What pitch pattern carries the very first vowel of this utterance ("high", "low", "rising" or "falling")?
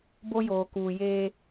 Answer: high